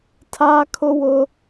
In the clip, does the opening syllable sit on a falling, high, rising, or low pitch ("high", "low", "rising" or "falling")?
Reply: high